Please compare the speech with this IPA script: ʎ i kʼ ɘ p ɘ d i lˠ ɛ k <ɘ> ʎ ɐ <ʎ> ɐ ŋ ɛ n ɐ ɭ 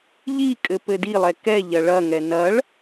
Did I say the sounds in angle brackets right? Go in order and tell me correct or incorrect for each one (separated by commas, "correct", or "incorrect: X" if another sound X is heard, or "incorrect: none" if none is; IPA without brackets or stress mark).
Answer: incorrect: ɛ, incorrect: ɭ